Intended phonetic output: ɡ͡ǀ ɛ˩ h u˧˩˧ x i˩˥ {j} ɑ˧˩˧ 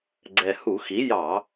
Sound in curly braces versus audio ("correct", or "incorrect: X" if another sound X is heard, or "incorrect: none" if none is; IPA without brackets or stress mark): correct